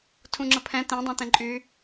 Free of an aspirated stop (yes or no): no